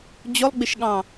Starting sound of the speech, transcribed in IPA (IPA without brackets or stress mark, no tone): d͡ʑ